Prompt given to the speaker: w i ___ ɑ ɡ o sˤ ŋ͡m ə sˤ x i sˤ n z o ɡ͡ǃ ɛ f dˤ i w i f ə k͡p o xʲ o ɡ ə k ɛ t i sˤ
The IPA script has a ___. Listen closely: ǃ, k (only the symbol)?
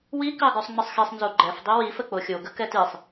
k